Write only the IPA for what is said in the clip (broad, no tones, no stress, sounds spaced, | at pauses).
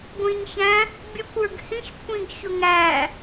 ɡʷ ĩ ɲ ç æ̃ | bʲ ə kʷ ə˞ ɡ h ĩ ç kʷʰ ĩ ɡ ç ʊ ŋ æ